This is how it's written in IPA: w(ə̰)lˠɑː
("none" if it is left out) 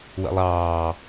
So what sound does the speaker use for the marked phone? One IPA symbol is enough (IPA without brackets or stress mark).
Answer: ə̰